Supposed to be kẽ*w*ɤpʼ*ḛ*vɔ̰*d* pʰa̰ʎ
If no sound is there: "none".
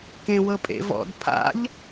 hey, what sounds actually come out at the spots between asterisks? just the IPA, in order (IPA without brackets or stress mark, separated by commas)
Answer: w, ḛ, d